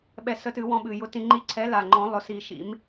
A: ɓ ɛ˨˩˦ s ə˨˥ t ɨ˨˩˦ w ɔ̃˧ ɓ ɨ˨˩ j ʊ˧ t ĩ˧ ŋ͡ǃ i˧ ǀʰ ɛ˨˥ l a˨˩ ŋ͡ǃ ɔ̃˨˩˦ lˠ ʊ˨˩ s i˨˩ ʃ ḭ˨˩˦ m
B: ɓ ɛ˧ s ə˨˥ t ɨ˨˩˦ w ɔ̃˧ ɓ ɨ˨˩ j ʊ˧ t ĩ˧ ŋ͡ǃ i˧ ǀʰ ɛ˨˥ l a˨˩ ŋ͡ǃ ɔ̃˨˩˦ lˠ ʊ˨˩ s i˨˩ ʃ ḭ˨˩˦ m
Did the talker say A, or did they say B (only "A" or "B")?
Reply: B